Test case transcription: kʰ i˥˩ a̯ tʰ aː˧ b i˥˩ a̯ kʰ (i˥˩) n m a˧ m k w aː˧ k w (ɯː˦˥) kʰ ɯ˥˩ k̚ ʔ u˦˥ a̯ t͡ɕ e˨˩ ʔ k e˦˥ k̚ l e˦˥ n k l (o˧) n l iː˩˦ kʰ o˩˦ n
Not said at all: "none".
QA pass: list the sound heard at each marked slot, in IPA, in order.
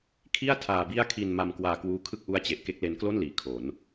i˧, uː˦˥, o˥˩

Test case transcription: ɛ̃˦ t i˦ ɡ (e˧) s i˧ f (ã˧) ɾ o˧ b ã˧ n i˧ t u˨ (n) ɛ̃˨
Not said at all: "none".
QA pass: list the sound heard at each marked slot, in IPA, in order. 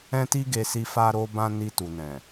e˧, a˧, n

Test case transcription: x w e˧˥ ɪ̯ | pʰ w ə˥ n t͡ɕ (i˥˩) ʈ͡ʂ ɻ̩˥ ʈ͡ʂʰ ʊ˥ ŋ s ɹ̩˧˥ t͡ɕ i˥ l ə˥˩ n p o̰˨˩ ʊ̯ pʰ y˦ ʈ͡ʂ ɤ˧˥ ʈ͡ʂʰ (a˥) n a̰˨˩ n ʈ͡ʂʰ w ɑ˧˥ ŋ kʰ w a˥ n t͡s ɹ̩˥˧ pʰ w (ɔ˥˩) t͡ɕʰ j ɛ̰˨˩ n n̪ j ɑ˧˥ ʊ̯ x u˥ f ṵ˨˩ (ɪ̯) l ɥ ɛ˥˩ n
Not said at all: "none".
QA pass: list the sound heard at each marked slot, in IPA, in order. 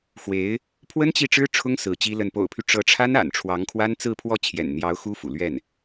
i˥˩, a˥, ɔ˥˩, none

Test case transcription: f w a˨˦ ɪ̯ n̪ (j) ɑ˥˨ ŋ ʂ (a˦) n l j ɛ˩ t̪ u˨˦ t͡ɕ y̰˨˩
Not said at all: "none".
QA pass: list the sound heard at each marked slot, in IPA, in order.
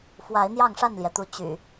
j, a˥˨

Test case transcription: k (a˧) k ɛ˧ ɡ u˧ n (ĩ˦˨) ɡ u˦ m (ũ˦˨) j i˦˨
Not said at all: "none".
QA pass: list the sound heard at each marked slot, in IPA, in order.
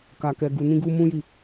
a˧, ĩ˦, ũ˦

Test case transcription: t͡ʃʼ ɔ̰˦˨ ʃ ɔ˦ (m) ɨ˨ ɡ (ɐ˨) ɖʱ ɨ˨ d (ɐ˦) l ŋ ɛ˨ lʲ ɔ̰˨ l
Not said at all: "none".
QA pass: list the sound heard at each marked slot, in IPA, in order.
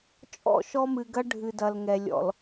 m, ɐ˦, ɐ˨

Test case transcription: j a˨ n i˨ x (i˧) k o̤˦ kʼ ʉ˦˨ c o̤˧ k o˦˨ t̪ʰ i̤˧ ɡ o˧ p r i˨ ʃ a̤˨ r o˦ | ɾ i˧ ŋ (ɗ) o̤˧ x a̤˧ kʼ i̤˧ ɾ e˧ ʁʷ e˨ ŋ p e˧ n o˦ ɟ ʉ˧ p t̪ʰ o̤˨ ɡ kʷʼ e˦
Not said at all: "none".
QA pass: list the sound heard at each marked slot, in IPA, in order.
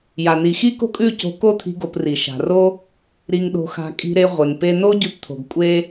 i˦, ɗ

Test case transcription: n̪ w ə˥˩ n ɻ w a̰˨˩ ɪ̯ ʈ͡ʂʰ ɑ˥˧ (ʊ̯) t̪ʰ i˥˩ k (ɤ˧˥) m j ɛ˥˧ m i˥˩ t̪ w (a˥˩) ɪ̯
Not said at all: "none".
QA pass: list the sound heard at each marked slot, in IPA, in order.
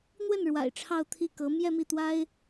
ʊ̯, ɤ˧˥, a˥

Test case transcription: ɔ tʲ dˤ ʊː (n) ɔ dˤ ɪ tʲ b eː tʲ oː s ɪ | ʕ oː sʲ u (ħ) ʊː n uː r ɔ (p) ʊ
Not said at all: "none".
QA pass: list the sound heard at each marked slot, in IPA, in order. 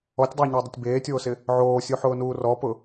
ɲ, ħ, p

